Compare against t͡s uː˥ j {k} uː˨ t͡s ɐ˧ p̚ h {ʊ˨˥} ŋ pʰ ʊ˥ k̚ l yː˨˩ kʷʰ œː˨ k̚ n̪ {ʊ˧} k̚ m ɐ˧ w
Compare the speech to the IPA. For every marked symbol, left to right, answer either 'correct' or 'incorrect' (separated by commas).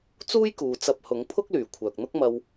correct, correct, incorrect